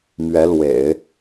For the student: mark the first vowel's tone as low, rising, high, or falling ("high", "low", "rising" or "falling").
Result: rising